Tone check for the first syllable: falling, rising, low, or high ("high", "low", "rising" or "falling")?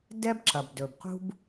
high